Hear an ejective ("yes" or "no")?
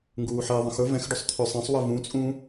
yes